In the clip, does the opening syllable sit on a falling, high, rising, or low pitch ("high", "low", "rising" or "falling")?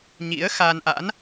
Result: rising